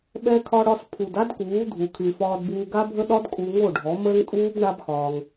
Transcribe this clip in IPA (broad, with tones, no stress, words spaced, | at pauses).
ɓɛ˧kʰɒ˧ɽɒ˧spʰu˨d a˦dkuː˨˦ dʱu˨kʰy˨fɒː˧d buː˧ɡa˦bʱə˦ ɗɒ˦dkʼu˧ ŋo˦˨ɖʱɔ˨˦məː˦ŋtʼuː˦b ɳa˦bxɒː˧ŋ